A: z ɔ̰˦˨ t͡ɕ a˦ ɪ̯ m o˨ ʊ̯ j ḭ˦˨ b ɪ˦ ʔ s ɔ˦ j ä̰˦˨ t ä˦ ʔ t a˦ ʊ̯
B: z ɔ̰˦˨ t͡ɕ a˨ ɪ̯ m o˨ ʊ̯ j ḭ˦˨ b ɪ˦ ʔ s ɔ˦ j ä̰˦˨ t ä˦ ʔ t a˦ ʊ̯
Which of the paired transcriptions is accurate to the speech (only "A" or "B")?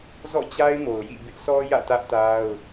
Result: A